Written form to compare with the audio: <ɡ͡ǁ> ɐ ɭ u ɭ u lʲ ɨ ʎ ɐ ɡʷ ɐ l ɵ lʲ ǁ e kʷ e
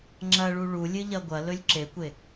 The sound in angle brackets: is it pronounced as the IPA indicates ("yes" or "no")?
no